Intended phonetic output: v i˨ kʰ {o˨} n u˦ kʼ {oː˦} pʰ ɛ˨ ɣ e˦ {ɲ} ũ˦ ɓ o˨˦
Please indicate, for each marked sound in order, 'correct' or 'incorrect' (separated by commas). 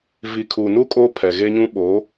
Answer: incorrect, correct, correct